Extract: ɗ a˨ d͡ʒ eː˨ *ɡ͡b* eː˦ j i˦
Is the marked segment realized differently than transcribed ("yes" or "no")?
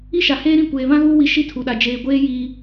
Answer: yes